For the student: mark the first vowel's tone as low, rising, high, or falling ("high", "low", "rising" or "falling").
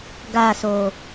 falling